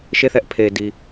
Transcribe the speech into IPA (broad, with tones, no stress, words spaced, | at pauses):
ʃe˦˨θɛ˦ʔ pʰe˨di˨